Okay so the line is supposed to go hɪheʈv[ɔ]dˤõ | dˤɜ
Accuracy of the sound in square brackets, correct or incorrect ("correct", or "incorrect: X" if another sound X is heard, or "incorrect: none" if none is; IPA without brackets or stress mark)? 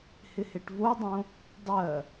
incorrect: o